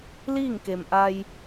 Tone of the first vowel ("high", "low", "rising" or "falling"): falling